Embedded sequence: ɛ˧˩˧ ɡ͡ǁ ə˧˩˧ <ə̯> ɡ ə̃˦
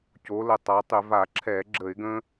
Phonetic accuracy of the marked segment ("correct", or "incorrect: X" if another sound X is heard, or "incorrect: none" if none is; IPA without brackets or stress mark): incorrect: ɪ̯